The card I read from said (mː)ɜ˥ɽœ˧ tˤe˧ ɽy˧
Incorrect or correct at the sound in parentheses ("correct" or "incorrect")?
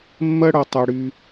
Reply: correct